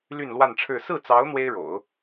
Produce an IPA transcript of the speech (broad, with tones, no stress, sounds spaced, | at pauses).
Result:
l y˥˧ n l w a˥˧ n ʈ͡ʂʰ ɻ̩˥˧ s ɹ̩˥˩ t͡s ɑ˧˥ ʊ̯ n̪ w e˥ ɪ̯ ɻ o̰˨˩˦ ʊ̯